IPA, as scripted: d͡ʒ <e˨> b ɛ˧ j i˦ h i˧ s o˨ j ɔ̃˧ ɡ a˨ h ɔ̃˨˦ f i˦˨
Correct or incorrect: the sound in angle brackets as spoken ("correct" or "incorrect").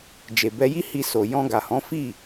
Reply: correct